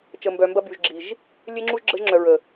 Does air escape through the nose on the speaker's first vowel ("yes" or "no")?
no